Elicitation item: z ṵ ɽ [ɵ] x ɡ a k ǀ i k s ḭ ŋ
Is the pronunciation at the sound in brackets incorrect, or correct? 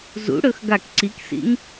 correct